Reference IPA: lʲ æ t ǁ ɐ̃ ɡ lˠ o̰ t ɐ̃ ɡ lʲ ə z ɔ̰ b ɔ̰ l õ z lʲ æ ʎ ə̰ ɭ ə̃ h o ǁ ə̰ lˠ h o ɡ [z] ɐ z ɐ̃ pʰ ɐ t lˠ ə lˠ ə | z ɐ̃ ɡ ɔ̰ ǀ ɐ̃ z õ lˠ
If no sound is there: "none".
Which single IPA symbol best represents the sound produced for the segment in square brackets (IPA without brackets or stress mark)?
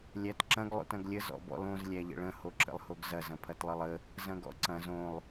z